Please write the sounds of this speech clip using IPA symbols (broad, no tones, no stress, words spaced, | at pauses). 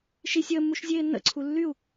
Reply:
ʃi sʲəːmːuʃ zʲeːnːə̰ǀʰu lːyu̯